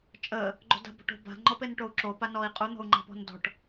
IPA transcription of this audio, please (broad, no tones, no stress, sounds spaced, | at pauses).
t͡ʃʼ ə | ɡ͡ǃ o̤ d a̤ b ɔ̤ ʈ o̤ b a̤ ŋ͡ǃ ɔ p e n ʈ o u̯ ǁ o p a n ɔ i̯ qʼ u n̪ ɔ̤ u̯ ŋ͡ǃ a̤ p ɔ̤ n d ɔ̤ ʈ